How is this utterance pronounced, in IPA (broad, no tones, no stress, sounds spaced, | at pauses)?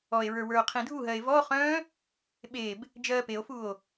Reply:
ɔ e̯ ɹ ə˞ w ə˞ o̯ qʰ ĩ dʱ u ɦ ɜ e̯ v ɔ χ œ̃ː | ɓ e b | d͡ʒ ɜː p e o̯ f u o̯